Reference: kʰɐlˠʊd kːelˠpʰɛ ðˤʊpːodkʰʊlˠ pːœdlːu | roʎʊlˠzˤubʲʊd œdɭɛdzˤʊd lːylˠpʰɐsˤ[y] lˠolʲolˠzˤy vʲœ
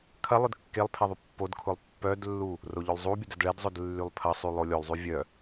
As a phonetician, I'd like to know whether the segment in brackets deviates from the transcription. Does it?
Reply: no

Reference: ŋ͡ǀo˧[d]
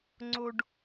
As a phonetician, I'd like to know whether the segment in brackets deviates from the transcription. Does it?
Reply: yes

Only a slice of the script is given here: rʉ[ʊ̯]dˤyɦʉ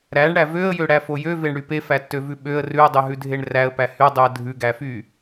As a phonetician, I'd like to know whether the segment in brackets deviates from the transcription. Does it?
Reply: yes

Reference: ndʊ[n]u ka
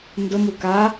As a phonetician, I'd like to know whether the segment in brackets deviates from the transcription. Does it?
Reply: yes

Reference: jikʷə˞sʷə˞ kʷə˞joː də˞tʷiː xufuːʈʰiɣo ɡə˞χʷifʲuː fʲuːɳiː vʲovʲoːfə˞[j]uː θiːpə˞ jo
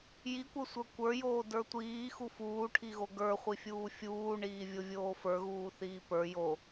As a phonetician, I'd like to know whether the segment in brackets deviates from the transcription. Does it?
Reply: yes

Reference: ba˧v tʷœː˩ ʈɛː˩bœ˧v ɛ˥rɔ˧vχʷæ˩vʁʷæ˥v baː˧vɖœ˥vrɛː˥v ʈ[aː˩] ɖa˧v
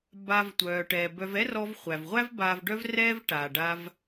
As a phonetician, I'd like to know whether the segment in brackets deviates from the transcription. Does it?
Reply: no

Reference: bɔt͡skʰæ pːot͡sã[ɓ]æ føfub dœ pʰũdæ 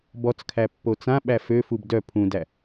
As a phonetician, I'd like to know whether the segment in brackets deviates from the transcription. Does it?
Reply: no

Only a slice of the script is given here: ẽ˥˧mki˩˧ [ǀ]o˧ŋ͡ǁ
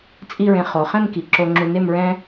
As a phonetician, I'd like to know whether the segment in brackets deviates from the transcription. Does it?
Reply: yes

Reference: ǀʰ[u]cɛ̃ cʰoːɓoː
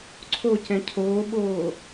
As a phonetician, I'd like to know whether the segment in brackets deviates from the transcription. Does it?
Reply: yes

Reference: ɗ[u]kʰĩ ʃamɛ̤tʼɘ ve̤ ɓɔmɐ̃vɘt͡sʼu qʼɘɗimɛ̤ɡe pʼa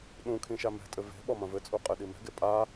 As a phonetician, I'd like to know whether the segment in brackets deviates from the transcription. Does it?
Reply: yes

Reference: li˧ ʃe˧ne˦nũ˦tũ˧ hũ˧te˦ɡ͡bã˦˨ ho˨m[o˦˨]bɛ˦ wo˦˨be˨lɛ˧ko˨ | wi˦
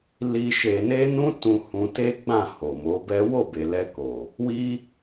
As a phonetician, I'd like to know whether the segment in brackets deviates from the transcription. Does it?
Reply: yes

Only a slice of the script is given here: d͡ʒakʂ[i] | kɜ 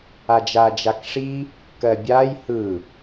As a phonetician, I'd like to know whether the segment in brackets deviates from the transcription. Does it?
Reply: no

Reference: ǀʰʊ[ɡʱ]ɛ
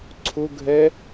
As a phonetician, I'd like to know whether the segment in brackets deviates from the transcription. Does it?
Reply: no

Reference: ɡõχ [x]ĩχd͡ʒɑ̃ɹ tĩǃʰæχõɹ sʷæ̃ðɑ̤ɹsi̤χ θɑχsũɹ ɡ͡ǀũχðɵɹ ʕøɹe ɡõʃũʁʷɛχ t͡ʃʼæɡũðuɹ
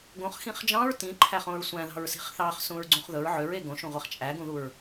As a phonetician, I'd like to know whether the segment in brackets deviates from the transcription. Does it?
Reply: no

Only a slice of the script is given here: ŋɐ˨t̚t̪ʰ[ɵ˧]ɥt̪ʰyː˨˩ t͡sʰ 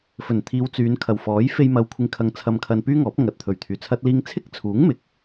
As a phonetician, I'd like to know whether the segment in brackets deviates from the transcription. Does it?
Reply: yes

